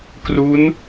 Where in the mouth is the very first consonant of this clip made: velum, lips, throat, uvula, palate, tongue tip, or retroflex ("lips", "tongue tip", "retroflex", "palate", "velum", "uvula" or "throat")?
velum